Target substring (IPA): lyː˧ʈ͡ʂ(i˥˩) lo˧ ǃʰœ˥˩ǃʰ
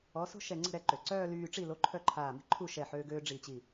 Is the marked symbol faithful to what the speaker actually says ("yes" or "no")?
yes